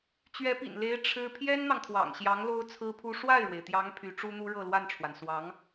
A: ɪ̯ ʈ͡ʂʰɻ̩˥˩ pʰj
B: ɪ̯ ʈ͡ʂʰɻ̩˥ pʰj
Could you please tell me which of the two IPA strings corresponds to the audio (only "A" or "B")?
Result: B